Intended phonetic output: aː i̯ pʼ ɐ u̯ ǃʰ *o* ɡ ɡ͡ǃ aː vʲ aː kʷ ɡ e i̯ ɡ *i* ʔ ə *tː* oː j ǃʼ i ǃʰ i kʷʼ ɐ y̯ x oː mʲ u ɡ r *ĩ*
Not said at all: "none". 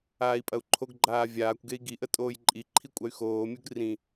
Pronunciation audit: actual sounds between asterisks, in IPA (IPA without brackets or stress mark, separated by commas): o, i, tʼ, ĩ